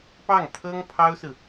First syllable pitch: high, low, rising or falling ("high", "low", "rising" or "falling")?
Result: falling